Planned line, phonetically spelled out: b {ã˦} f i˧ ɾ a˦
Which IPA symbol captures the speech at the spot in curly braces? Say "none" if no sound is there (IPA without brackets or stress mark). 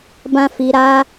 ã˦